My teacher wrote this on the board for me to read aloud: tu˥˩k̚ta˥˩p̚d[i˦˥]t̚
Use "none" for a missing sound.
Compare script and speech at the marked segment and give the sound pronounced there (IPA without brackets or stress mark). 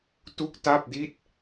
i˥˩